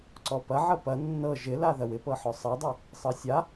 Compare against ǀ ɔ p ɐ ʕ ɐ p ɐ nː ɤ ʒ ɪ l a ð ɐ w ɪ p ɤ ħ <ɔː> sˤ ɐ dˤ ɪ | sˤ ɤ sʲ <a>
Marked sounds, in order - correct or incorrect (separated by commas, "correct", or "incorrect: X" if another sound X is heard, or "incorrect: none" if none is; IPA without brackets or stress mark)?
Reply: incorrect: ɔ, correct